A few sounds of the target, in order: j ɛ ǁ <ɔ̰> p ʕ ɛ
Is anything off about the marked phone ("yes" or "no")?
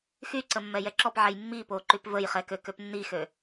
yes